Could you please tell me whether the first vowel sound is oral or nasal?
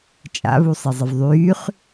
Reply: oral